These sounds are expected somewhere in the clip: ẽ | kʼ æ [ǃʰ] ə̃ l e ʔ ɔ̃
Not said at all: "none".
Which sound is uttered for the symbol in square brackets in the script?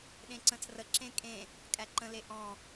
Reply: ǃ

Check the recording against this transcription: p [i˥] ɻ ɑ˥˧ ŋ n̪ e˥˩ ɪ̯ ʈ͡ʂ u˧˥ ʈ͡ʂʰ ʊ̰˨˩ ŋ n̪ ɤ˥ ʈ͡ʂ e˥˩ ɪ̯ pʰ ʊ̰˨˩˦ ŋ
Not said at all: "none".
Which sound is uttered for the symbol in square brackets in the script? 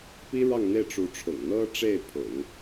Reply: i˥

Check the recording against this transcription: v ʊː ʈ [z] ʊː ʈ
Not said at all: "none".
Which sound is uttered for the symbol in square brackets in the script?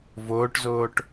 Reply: z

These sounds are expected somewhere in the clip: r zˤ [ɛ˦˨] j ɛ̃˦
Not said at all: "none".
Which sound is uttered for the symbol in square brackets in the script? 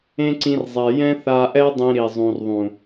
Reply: ɛ˨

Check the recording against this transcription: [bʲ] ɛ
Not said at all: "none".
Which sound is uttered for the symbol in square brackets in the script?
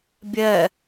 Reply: bʲ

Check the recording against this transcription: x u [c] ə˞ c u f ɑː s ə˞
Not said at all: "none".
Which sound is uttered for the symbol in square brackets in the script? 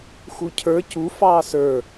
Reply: cʰ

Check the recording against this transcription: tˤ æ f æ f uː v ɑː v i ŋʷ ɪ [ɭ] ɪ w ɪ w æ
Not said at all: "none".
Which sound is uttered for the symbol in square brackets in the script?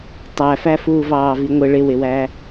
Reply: ɭ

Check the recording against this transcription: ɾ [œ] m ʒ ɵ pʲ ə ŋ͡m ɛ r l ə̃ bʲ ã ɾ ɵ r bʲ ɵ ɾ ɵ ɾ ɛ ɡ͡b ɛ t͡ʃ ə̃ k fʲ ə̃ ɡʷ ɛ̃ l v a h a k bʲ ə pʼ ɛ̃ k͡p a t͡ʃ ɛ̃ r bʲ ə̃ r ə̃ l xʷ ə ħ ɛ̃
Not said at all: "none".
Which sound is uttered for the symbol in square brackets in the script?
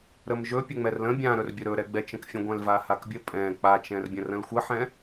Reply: ə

